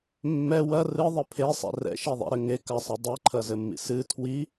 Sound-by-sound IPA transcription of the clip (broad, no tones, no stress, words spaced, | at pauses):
mːɛ wɐ rɨðˤɘ pʰesˤɛ̰ rɛ̰ʃiðˤɛ̰ɾɘ ŋekasˤɨ dˤeǃʰɐzɘmːḭ sɨ tʰwi